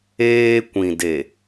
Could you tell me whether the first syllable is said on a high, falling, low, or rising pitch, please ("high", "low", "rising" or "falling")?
high